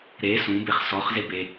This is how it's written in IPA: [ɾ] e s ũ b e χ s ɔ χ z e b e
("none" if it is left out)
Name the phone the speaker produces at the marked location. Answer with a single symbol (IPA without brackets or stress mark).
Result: ɾ